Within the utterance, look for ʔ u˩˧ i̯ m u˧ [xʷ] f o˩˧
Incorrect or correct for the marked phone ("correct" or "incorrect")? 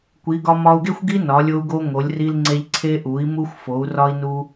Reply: correct